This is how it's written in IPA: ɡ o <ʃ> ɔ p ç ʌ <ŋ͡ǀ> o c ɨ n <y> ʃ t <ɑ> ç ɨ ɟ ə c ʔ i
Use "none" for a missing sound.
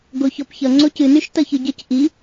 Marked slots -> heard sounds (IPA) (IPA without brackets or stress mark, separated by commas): ç, ŋ͡ǀ, y, ʌ